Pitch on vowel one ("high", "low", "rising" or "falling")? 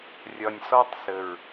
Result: low